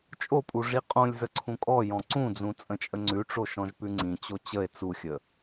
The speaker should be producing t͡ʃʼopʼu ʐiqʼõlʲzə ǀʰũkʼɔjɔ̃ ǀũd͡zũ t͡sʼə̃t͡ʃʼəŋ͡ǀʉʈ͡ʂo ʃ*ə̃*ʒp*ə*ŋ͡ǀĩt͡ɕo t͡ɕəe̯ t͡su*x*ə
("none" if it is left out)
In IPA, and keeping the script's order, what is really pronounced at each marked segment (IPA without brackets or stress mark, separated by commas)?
ɔ̃, ʉ, xʲ